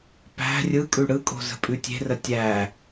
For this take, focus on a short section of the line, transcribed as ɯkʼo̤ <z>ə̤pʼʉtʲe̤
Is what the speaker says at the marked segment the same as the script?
yes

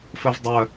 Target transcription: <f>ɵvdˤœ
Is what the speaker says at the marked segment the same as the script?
yes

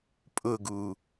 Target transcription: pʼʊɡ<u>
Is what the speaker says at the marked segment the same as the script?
yes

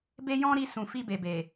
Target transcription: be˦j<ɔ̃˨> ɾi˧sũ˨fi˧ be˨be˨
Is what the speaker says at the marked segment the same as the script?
no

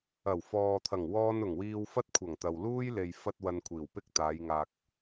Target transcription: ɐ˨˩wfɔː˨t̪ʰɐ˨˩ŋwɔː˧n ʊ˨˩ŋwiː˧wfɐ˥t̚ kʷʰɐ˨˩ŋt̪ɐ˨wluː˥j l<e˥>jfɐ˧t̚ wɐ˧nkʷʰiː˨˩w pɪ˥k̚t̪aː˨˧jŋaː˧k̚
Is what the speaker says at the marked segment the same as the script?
no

